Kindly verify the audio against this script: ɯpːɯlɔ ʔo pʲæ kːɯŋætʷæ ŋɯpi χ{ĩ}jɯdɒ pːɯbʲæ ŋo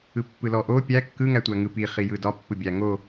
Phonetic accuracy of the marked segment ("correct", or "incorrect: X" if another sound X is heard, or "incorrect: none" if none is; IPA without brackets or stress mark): incorrect: i